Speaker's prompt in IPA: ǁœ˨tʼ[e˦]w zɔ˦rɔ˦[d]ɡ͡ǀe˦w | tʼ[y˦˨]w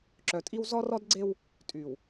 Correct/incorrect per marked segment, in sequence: incorrect: i˦, correct, incorrect: y˨

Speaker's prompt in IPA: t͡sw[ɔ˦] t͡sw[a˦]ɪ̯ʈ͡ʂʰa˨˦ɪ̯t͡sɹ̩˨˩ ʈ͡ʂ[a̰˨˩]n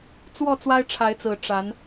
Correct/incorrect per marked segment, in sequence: incorrect: ɔ˥˨, correct, incorrect: a˨˦

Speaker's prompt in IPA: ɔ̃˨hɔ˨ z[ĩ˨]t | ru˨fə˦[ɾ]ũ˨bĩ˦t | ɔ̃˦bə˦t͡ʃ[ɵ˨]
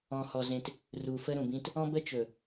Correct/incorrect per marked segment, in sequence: incorrect: ẽ˨, correct, correct

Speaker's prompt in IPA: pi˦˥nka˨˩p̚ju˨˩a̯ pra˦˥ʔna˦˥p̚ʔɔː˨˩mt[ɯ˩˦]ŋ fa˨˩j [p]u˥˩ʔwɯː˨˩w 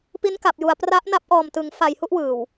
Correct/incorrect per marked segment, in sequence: correct, incorrect: h

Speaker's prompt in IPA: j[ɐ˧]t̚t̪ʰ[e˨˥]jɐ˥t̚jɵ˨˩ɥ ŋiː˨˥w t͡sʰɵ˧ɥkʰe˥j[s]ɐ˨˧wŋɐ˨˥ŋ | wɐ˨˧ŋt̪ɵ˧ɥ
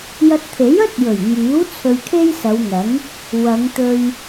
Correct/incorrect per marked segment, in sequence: correct, correct, correct

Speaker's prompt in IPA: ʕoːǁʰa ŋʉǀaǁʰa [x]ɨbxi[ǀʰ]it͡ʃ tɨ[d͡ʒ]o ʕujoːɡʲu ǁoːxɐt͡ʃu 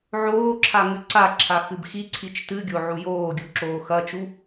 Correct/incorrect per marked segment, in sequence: correct, correct, incorrect: ɡʲ

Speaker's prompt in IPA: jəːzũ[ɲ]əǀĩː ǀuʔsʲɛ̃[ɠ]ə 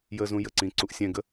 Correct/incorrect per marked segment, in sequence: incorrect: j, incorrect: ɡ

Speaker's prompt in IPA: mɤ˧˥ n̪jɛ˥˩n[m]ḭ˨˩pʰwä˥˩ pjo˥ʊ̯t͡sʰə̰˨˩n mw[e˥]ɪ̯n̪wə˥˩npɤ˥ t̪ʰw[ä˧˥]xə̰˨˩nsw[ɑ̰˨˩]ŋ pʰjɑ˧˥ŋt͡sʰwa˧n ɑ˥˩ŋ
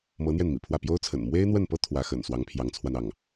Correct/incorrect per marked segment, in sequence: correct, correct, correct, incorrect: ɑ˧˥

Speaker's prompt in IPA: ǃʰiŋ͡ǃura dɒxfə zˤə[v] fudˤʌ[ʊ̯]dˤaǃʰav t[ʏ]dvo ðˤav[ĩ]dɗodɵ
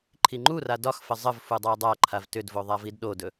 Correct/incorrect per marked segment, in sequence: correct, incorrect: ɪ̯, correct, incorrect: i

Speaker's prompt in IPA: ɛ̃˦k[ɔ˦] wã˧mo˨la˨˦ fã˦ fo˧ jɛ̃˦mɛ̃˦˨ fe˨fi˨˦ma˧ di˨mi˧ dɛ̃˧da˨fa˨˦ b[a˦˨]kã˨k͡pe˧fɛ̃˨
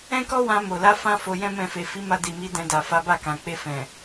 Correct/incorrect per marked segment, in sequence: correct, correct

